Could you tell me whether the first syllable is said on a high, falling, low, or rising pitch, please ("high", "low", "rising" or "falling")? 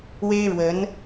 high